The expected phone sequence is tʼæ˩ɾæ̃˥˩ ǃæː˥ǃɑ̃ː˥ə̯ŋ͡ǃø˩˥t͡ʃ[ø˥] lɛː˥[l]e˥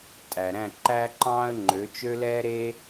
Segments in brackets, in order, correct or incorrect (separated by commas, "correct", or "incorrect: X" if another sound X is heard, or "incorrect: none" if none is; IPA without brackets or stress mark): correct, incorrect: ɾ